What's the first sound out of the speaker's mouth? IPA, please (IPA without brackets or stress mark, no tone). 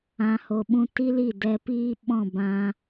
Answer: ã